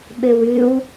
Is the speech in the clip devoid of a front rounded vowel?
no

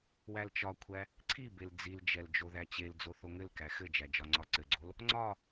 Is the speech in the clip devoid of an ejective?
yes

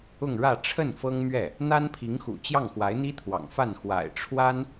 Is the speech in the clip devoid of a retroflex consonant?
no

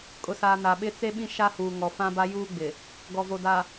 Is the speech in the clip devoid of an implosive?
no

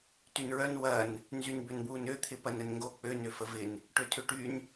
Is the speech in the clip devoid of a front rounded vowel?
no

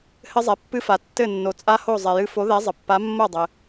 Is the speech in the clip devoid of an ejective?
no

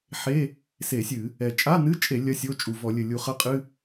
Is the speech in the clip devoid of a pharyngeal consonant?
no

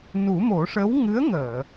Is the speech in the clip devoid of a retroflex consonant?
no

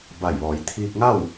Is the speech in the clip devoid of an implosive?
yes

